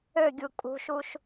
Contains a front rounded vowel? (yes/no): yes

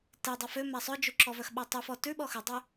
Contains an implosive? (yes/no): yes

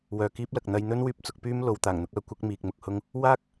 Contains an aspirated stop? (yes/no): no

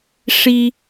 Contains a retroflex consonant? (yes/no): yes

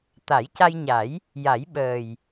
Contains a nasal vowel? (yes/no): no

